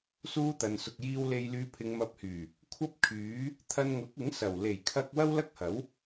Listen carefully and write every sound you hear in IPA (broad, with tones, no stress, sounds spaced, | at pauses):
s uː˥ t̪ ɐ˨ n s ʊ˧ k̚ j iː˥ w l e˧ j l yː˧ pʰ ɪ˨˧ ŋ m ɐ˧ p̚ h yː˨˩ | kʷʰ ɐ˥ p̚ kʰ yː˨˥ | t̪ʰ ɐ˧ n ŋ ʊ˨˥ k̚ ɪ˨˥ ŋ s ɐ˨˩ w l e˨˩ j kʰ ɐ˧ k̚ w ɐ˥ w l ɐ˥ k̚ h ɐ˨˥ w